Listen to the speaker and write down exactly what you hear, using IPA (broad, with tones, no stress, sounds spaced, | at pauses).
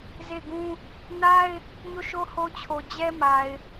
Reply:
z e˦˨ ɪ̯ ɡ ũ˦ | n a˦ ɪ̯ | ɲ o˦˨ ʃ o˦ h o˦ t͡ɕʰ o˨ d͡ʑ ɛ˦ m a˨ ɪ̯